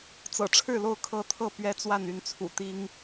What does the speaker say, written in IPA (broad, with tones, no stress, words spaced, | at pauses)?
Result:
t͡sɤ̰˨˩ʈ͡ʂʰɻ̩˥˨lo˥˨ʊ̯ kʰɤ˦t̪ʰɤ˥˨ pɥɛ˦t͡swa˥˨ny˥˨nt͡sʰṵ˨˩ t̪i˦ŋ